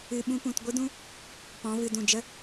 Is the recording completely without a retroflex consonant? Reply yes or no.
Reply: yes